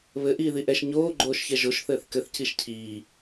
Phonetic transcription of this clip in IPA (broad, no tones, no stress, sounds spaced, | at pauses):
β ɘ ʔ iː ð i ʔ ɛ ʃ ɲ oː ɡ͡ǃ oː ʃ ç ɛ ʒ o ʃ θ ɘː θ k ɘ θ c i ʃ cʰ iː